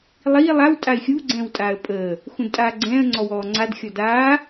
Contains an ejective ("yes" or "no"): yes